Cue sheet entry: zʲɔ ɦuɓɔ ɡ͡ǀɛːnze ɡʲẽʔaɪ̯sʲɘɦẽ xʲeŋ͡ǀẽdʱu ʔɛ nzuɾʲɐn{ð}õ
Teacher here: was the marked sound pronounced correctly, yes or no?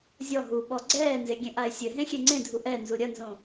no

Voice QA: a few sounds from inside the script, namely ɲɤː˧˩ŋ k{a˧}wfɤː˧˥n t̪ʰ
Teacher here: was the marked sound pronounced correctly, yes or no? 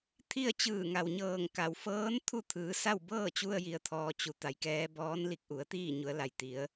no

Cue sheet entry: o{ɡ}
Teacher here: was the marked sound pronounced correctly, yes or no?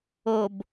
no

